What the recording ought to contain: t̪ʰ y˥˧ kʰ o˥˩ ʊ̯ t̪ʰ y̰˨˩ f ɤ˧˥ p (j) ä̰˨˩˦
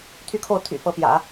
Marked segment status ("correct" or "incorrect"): correct